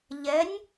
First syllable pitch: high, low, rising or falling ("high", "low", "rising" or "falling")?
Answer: rising